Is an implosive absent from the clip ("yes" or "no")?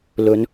yes